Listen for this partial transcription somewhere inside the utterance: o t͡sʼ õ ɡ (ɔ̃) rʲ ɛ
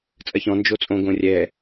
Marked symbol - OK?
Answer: no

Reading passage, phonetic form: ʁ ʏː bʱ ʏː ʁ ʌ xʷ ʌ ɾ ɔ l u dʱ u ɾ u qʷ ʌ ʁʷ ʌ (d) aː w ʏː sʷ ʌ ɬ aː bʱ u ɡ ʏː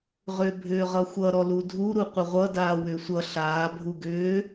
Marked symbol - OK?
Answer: yes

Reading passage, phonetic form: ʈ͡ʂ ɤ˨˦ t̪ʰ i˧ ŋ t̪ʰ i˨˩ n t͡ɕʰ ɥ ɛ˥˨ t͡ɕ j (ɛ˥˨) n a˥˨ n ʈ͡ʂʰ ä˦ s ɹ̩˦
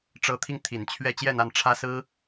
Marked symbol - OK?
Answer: yes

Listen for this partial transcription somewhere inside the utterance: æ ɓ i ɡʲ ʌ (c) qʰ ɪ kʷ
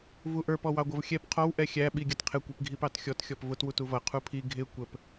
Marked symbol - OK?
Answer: no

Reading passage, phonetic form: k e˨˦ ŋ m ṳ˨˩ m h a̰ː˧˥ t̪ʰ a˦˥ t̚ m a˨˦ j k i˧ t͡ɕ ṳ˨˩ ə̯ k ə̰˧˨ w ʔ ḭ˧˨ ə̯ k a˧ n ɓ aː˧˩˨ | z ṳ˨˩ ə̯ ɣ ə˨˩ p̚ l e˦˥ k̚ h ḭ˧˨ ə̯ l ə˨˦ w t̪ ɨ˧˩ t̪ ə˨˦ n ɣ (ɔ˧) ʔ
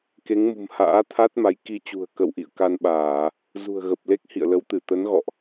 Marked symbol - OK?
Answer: no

